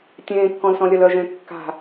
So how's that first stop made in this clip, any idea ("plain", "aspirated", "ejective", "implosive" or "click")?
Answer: plain